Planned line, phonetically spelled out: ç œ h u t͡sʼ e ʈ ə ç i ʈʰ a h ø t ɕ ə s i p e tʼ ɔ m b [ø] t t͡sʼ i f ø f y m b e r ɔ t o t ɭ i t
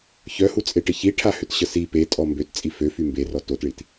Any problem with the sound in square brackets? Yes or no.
no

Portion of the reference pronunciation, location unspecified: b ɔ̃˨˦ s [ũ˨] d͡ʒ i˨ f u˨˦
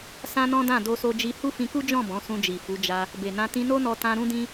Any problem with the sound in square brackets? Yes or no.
yes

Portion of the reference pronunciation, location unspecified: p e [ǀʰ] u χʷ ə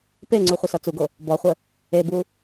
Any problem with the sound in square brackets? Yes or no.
yes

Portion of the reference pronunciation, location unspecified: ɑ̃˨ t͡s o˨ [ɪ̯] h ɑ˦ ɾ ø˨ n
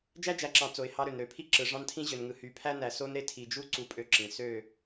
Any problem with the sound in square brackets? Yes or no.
no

